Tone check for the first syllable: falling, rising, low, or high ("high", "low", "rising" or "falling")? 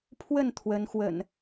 falling